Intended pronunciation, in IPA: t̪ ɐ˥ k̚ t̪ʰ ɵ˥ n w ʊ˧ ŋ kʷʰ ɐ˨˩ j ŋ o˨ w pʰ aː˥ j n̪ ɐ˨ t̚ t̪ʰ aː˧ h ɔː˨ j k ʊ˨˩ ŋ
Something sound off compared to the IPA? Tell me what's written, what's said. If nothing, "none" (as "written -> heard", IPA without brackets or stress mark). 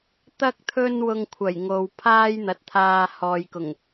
none